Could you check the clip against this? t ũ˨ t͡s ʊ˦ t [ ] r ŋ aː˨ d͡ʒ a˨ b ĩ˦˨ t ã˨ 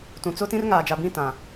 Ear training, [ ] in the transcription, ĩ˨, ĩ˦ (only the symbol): ĩ˦